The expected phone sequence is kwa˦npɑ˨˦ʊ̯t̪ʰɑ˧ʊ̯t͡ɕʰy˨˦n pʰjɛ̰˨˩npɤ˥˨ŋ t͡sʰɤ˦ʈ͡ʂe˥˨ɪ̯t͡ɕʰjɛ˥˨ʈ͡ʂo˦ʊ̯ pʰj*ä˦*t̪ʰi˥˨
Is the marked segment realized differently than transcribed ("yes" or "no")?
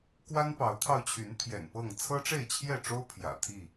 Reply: yes